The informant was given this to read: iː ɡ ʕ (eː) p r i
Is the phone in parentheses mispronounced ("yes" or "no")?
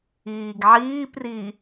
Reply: yes